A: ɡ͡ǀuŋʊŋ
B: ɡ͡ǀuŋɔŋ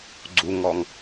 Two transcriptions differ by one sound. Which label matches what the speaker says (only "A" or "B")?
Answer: B